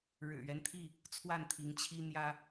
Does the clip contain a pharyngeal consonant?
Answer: no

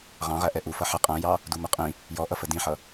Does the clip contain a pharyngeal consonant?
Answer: yes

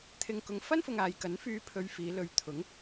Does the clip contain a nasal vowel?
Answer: no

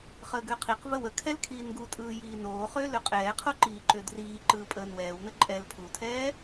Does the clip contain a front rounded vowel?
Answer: yes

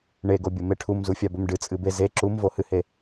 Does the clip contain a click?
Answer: yes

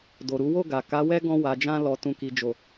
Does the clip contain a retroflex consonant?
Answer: no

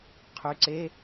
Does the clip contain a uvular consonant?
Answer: yes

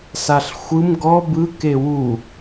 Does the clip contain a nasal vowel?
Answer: no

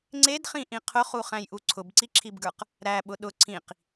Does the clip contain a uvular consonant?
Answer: yes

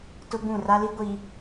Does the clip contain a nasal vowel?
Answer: yes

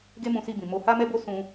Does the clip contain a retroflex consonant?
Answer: no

